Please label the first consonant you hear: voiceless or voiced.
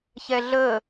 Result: voiceless